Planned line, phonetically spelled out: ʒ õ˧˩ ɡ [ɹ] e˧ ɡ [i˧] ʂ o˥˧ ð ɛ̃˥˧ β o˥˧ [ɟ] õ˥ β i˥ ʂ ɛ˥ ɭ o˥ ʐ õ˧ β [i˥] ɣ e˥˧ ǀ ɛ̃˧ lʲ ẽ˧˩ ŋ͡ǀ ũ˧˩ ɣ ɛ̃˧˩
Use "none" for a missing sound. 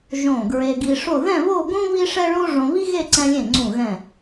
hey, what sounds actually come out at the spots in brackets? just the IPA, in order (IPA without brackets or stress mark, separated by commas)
ɹ, i˧, ɡ, i˥